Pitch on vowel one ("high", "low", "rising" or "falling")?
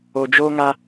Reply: low